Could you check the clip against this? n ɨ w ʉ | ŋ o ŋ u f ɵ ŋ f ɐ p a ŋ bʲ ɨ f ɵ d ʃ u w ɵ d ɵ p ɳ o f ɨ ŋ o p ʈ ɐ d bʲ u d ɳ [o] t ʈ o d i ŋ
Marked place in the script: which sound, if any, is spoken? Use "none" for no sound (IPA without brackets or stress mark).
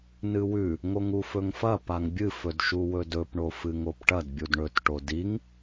ɵ